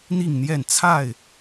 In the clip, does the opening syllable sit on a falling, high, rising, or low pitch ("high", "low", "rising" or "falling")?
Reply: falling